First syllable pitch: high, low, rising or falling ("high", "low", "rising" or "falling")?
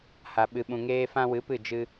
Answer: low